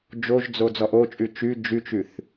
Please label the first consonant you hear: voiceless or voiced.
voiced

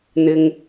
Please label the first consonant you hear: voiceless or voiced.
voiced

